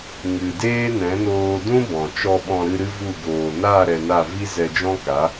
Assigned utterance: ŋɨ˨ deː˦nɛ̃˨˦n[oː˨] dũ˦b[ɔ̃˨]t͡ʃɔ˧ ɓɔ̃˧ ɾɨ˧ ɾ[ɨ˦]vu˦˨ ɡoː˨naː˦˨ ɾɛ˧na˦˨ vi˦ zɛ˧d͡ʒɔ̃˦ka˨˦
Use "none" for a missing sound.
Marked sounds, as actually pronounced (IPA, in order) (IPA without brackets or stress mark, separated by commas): oː˧, ɔ̃˨, ɨ˦